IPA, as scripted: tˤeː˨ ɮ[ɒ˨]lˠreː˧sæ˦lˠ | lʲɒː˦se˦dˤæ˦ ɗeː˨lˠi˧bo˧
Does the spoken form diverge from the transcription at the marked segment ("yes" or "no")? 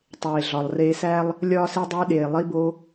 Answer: no